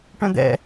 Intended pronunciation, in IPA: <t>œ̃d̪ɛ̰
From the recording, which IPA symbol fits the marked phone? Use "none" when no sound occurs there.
ʈ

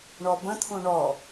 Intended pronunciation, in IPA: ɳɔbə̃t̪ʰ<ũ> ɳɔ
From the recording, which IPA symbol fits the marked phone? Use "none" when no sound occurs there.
ũ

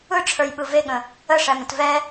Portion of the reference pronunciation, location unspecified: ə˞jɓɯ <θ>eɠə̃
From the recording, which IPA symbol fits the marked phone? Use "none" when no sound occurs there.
v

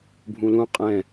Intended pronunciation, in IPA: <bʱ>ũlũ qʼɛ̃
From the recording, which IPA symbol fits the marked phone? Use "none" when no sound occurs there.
bʱ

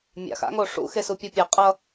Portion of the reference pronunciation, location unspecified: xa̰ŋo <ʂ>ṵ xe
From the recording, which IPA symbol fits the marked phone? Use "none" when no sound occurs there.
ʂ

